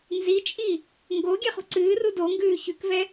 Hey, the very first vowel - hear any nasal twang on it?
no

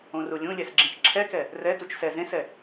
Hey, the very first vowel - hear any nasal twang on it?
yes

